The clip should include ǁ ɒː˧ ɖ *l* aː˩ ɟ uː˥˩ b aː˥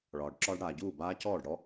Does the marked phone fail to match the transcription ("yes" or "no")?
yes